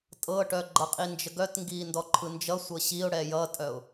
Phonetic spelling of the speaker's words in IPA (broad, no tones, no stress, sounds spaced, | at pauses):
tʼ ɤ ʈ œ ɡ͡ǃ ʌ qʼ i n d͡ʒ ə ɡ œ t ŋ ɡ iː n d ɔ ǃʰ ɯ n d͡ʒ ʌ sʷ ɤ ɕ i ʊ̯ ɽ ɛ j ʌ tʼ œ ʊ̯